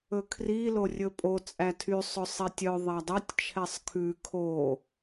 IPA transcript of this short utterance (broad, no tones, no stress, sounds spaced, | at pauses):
ɵ kʰ r i l o rʲ ɵ pʼ o t͡sʼ æ tʰ y sˤ ɵ sˤ e tʲ œ ðˤ æ dˤ œ tʲ t͡ʃʰ ɛ sˤ kʰ ʉ kʰ o